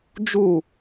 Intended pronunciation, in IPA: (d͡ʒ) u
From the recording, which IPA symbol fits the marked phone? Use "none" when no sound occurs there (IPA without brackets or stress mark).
d͡ʒ